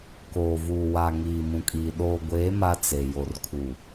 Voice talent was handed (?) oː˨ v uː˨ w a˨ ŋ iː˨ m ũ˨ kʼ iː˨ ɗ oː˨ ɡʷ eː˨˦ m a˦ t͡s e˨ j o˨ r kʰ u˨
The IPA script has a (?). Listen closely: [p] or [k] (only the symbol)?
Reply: k